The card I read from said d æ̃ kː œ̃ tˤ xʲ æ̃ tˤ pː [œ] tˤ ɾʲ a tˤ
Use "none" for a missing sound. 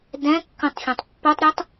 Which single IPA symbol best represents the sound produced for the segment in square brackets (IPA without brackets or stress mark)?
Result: œ